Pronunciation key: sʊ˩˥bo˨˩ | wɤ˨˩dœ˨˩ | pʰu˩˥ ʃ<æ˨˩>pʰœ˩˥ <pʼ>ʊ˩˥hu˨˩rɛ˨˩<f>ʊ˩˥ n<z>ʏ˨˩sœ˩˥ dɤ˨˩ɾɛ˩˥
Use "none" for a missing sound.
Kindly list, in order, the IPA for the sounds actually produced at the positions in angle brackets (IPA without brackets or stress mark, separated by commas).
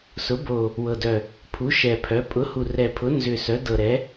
ɛ˨˩, pʼ, pʰ, z